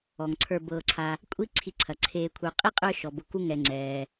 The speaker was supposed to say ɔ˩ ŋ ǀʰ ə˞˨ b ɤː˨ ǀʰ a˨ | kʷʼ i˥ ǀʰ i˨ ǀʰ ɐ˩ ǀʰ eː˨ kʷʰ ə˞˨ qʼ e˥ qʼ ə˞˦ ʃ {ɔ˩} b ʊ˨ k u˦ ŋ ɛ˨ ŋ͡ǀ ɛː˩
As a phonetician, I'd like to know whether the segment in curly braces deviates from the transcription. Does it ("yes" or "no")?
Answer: no